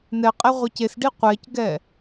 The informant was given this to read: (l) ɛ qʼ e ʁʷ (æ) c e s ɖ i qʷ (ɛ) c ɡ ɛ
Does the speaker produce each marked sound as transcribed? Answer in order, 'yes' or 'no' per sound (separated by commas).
no, yes, yes